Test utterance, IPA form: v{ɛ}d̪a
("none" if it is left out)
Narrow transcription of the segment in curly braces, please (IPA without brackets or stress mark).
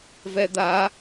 ɛ